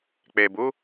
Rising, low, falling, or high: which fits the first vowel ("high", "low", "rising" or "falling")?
low